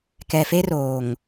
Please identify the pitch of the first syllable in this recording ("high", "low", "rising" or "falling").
low